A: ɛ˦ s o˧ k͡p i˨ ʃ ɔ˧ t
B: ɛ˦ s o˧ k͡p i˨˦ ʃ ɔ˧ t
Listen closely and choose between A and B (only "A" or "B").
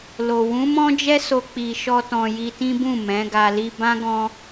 A